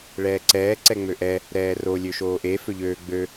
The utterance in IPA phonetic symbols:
ɭ ɛː ǀ ɛː ǀ ɛ ŋ͡m ø ʔ ɛ | ɾ ɛː r o lʲ ø ʃ oː ʔ e f ø ʎ øː ɡ͡b ø

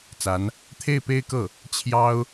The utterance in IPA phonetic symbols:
t͡s a˧˥ n | t̪ʰ e˥˩ ɪ̯ p e˥ ɪ̯ k ɤ˥˩ | t͡ɕʰ j ɑ˥ ʊ̯

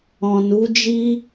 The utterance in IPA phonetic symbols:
ɔ̃˨ n u˨˦ d͡ʒ i˦

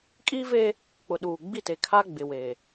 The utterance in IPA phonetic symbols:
kʼ iː˦ v eː˦ | k͡p ʊ˨ ɗ uː˨ ɡ͡b i˦˨ t e˨ kʰ a˦ ɡ͡b ɪ˨ w e˨

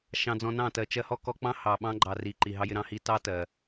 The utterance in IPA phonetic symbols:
ʃ ɑ̃˧ d͡z ɔ̃˧ n ɑ̃˦˨ t ɜ˨ t͡ʃ ɜ˧ h ɔ˦ k ɔ˧ k͡p ɑ̃˦ h ɑ˨ ɓ ɑ̃˧ ɡ͡ǃ ɑ˨ r i˨ ǃ i˨ ɦ ɑ˧ j ɪ˧ ɾ ɑ̃˧ h i˧ t ɑ˦ t ɜ˨

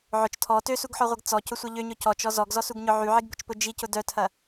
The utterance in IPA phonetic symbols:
ʕ ʊ t͡ʃ tʰ ɔ t ø s u ɡ ħ ɔ ʁʷ ɐ ɡ t͡s ɔ c ʊ sʷ ɐ ʎ ø ɲ ʊ c ɔ t͡ʃ ɔ z ɔ ɡ z ɔ s u ɡ ɲ ʊ ʕ y ʕ i ɡ b ʊ t͡ʃ p ʊ d͡ʒ i c ʊ d œ tʰ ɐ

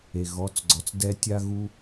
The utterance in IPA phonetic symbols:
e˨ ɣ ɔ˨˦ t͡s ɡ͡ǀ ɔ˨ t͡s d ɛ˦ tʲ a˦ ɣ u˦

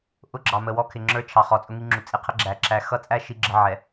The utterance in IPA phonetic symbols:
ʔ ʊ˦ ɡ͡ǁ ɑ˨ m ə˨ w ɔ˦ kʰ ɪ˨ ŋ͡ǁ ə˞˦ t͡ʃʰ ɑ˨ χ ɔ˨ t͡sʼ ʊ˦ ŋ i˦ ŋ͡ǁ u˨ t͡sʼ i˨ qʰ ə˦ ɡ͡ǁ æ˨ ǁ æ˨ x ʌ˦ t͡sʼ æ˦ ʃ i˦ ɡ͡ǁ ə˦ ʕ ɛ˨

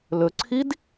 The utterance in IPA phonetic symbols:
l ɵ ǀʰ i d

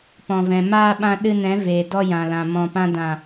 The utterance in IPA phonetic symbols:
p ɔ̃˨ v ɛ̃˨ m aː˧ ɓ ã˧ ɗ ɨ˧ n ɛ̃˨˦ v eː˨ d ɔ˧ j ã˨ l ã˨ m ɔ̃˨ p ã˧ d ã˨

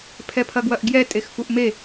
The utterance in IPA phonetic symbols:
pʰ ɛ pʰ ɐ ɡ w ɐ ʔ ɡ j ɛ tʼ e x f u ʔ m e

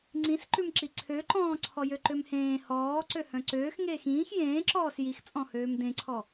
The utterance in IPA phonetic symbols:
ŋ͡ǀ ĩ s ǃ ʉ m ǁ i ǀʰ ø ǃ ɔ̃ː ǀʰ ɔ j ø ǃ ø m h ẽː h ɔː ǀ ø h œ̃ ǀ øː x ŋ eː x ĩː x j ẽː ǁ ɔː s j i x t͡sʼ ɔ̃ h øː m d ẽ ǀʰ ɔ

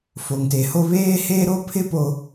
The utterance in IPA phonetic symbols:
f o˨ ŋ t e˨ h o˦ β eː˦ h eː˦ ɾ o˦ pʰ ɪ˦ p o˨

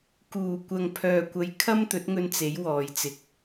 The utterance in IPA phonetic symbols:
k uː˨˩ kʷ ɐ˨ ŋ pʰ œː˨ kʷ ɐ˨˧ j kʰ ɐ˥ m t̪ ɵ˨˥ t̚ ŋ ɵ˧ n t͡s e˨˥ j w ɔː˨ j t͡s ɪ˨˥ k̚

